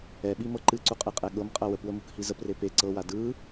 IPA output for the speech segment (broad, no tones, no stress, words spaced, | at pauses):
ɛɓimɤ ǃɨǀuqʼeqʼɛ ɠɤmqʼɐ wəpwəmukhi zəpre pe ǀɤwa dɯ